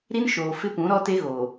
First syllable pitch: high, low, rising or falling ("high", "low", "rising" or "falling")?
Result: high